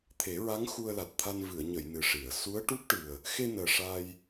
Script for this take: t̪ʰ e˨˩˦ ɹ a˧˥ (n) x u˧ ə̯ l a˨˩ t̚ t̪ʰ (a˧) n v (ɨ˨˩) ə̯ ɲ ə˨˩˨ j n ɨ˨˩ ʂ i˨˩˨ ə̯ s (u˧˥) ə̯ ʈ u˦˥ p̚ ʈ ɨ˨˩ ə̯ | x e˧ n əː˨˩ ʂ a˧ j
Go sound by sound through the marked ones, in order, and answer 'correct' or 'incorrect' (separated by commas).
incorrect, correct, incorrect, correct